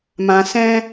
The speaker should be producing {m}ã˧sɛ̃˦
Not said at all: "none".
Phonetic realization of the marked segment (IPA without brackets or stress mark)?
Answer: m